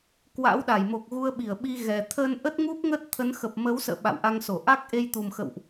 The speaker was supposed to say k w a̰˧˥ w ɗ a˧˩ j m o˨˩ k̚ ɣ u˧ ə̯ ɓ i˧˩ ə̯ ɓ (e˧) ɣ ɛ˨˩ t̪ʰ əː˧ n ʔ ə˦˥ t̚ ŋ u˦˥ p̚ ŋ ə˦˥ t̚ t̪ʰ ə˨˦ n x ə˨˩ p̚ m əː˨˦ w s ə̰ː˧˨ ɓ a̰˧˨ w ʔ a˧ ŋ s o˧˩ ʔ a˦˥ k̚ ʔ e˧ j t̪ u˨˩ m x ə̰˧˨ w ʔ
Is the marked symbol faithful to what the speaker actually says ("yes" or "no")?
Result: no